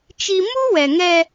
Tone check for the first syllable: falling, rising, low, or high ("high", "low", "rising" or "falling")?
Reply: high